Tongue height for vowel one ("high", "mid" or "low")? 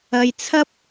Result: low